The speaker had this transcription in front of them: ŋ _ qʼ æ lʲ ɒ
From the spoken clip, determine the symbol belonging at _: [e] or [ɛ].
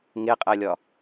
e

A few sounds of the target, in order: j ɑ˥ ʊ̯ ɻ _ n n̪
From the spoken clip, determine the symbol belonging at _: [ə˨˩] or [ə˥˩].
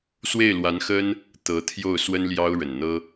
ə˨˩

